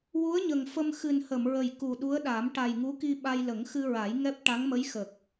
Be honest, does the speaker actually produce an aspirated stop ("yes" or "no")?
no